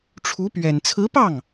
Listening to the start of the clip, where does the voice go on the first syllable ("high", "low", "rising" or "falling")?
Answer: rising